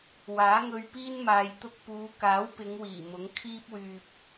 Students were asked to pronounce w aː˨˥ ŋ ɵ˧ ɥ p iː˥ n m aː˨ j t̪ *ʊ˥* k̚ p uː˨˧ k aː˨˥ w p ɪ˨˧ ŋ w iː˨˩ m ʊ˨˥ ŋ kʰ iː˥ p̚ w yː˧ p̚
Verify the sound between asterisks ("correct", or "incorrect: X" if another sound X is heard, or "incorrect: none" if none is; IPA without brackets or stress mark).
incorrect: ʊ˧